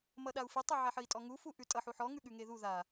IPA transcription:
mʌɗau̯fʉtˤʉ ʕaħəi̯tʼɔŋu fuʔʉtʼʌħ uħɔ ŋʉɠʉŋeðu ða

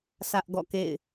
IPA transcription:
sʰä˦ʔɡɔ̰˦˨kḛ˦˨ɪ̯

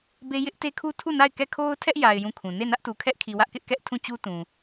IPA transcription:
be˦ jɪ˦ʔte˦kʰu˦ tʰu˦˨na˦˨ɪ̯kɛ˦˨ kʰo˦ʊ̯tʰɛ˦ʔja˨ɪ̯ jũ˦˨kʰũ˨ ne˦˨nä˦ʔtu˨kʰɛ˦ʔ kʰi˨wä˦ʔkɪ˦ʔkɛ˦ʔ tʰũ˦˨ t͡ɕu˦ tũ˨

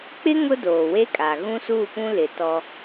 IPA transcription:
k͡pɪ˦ ŋʊ˦doː˨we˦kʼa˨ ɣũ˦suː˦˨pũ˦lɪ˨ tɔ˦

